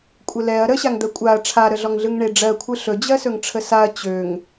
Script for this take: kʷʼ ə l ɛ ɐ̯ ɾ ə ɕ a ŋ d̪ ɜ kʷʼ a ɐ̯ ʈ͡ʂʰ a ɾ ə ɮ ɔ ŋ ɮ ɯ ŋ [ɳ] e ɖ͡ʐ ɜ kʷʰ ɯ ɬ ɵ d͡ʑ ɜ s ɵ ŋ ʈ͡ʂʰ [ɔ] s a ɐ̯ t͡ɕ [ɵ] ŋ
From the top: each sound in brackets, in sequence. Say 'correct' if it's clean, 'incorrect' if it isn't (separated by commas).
correct, incorrect, incorrect